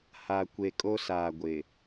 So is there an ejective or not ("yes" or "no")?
yes